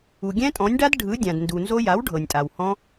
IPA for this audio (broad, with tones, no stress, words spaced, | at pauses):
u˩ɡʲɛ̃˦˥tʼɔ̃˩˥nʲɖa˦˥d ɖʱɯ˩˥ dʲã˩dndu˩nzo˦˥ ja˩˥wɖʱɤ˩nʲtʼa˩w hɔ̃˦˥